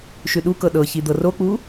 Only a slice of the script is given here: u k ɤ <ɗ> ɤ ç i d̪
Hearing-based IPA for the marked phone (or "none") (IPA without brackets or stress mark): ɗ